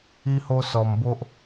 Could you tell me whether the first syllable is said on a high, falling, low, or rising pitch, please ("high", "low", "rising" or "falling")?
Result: high